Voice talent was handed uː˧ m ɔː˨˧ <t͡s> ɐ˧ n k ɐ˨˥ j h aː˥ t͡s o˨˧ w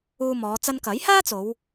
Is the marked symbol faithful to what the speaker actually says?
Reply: yes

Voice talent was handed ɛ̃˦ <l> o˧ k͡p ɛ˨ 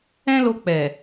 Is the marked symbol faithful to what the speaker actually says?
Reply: yes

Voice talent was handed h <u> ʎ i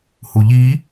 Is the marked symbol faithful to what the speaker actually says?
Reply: yes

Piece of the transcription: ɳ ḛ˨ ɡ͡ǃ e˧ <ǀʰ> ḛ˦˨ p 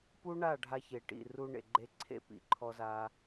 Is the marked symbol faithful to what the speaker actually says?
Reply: yes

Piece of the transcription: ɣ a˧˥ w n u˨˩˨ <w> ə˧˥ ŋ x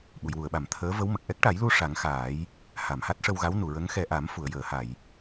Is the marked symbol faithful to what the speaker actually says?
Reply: no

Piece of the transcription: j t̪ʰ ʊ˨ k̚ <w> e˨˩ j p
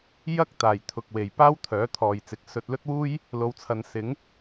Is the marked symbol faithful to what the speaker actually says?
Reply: yes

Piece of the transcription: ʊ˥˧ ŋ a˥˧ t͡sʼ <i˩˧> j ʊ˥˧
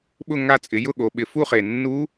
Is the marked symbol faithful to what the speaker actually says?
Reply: no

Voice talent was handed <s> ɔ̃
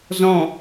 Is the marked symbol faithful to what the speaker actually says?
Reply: no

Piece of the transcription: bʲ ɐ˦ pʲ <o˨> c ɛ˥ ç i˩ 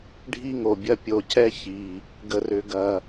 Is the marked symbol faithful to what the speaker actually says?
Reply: yes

